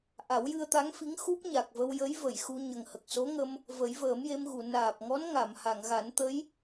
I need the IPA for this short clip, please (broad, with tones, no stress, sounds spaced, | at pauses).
ʔ a˨˩˦ w j ɨ˧ ə̯ t̪ a˧˥ ŋ f i˧˥ ŋ x u˦˥ p̚ ɲ a˨˩ k̚ v ə˧ w j ə˧˥ j v ə˨˩˨ j x u˧ ɲ ə˨˩ ŋ h ə˨˩ k̚ s o˧˥ ŋ ə˧ m | v ə˨˩˦ j v əː˨˩˦ m j e˧ m ɣ u˨˩˨ n aː˨˩ p̚ ŋ ɔ˧˥ n ŋ a˨˩˨ m h a˨˩˨ ŋ ɣ a˨˩˦ n t̪ ə˧˥ j